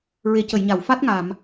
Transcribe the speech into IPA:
ɹe˨˩˦cə˨˩˨jɲa˨˩˨w fa˦˥t̚ŋa˨˩˨m

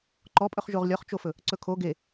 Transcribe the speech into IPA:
ǃɔpʼɵχʒoʁ lʲɔχt͡ʃofɵ | ǀɵkʰo ɡe

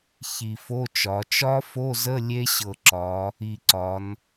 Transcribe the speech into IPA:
çi˧˩fo˧˥˧t͡ʃɒ˩˧ t͡ʃɒ˦˥fo˧˥˧zə˧˥˧ lʲe˦˥ɕɤ˧˩ǁɒ˩˧ | i˧˩ǀɒ˩˧n

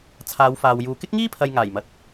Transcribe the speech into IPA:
t͡sʰaː˨˧wfaː˨wjuː˨ kɪ˥k̚ŋiː˥pʰɐ˨j ŋaː˨˩jmɐ˨t̚

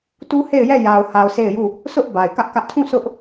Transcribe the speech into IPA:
tu˦he˦˨ɪ̯jɛ˦˨ ja˨ʊ̯ha˨ʊ̯ se˦˨ɪ̯ju˦˨ | sʊ˦ʔ ba˨ɪ̯kä˦ʔkä˦ʔ tʰũ˦˨ sʊ˦ʔ

